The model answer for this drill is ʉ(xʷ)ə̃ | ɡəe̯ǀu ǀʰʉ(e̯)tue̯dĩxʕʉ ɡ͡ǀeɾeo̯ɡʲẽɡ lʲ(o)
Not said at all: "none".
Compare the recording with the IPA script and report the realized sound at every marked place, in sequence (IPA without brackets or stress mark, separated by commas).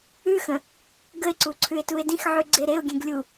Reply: x, e̯, u